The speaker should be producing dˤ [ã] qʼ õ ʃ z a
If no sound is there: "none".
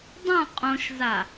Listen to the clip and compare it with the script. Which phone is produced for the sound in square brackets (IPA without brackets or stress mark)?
ã